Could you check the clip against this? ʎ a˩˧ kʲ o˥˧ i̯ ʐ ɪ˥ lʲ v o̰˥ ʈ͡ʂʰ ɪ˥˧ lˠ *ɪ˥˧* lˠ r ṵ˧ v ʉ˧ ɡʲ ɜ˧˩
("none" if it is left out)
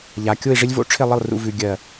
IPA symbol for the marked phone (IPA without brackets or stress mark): ɪ˥˧